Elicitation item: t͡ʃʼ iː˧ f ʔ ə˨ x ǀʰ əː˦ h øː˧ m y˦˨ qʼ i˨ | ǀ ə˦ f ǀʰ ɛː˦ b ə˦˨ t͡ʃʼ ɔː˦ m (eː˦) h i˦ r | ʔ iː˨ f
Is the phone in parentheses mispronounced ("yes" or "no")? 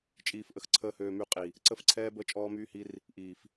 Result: yes